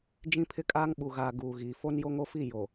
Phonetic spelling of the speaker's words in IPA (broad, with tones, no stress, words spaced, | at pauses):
d͡ʒĩ˦pʰɪ˦kʼaː˦ŋ ɓu˨ɣaː˨ ɡuː˨ɣiː˨ fo˦njo˦ŋo˦fi˦˨ jo˨